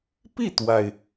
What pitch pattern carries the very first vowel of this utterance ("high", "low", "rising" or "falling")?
falling